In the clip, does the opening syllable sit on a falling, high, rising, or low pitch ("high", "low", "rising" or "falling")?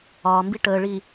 low